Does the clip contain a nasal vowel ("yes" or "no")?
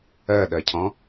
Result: yes